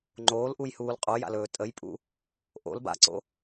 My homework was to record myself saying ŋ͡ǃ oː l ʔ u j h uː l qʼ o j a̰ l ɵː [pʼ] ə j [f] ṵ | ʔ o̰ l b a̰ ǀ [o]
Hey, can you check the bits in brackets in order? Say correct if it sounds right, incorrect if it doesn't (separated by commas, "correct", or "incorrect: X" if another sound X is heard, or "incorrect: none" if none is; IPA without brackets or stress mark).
incorrect: tʼ, incorrect: pʼ, incorrect: o̰